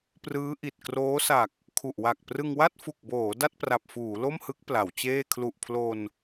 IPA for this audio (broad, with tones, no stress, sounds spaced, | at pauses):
p r ɯː˦˥ ʔ i˨˩ t̚ k r oː˦˥ s a˨˩ k̚ | kʰ u˨˩ ʔ w a˨˩ k̚ p r ɯ˧ ŋ w a˥˩ t̚ f u˨˩ k̚ b oː˩˦ d a˥˩ t̚ p r a˨˩ p̚ f uː˩˦ l o˥˩ m h ɯ˦˥ k̚ p l a˩˦ w t͡ɕ eː˥˩ kʰ l u˨˩ ʔ pʰ l o˧ n